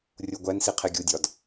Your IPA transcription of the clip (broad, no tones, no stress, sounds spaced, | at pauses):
rʲ o ɡʷ æ n s i qʰ e ɡʲ u dʲ ɒ d